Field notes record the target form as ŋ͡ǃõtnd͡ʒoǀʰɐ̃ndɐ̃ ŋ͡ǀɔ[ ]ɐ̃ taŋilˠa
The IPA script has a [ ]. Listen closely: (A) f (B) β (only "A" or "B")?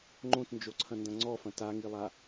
A